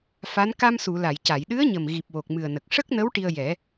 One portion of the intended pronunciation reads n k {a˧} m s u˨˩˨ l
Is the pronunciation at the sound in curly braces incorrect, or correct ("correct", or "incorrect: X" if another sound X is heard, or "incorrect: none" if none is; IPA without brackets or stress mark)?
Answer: correct